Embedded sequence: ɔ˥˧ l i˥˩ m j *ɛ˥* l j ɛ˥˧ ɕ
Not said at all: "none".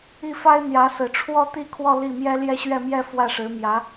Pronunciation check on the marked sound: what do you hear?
ɛ˥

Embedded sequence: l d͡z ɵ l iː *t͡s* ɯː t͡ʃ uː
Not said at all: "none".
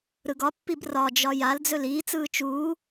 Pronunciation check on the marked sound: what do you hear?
t͡s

